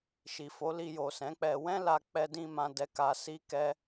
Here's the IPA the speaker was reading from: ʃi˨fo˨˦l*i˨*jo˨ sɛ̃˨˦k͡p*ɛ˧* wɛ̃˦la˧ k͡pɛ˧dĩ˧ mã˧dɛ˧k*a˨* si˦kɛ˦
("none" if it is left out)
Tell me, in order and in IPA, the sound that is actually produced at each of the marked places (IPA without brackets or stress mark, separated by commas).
i˧, ɛ˧, a˧